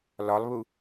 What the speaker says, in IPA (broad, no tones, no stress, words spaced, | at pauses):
lɒlˠβu